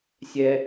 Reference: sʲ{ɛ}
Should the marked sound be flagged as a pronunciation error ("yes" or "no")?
no